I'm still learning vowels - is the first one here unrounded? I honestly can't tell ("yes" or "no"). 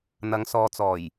yes